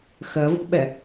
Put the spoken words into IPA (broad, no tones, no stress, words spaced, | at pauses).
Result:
xɜvo̤ɓɛ